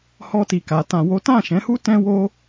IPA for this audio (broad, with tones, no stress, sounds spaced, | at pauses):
h ɔ˧ t i˨ k a˨˦ t ã˧ w o˦ t ã˦˨ ʃ ɛ̃˨˦ h u˦ t ɛ̃˦ w o˦